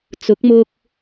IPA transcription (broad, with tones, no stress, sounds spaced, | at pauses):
t͡s ʊ˨˥ k̚ m ʊ˧ k̚